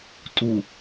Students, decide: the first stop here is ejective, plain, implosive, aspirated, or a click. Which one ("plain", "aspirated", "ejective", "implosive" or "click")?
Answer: ejective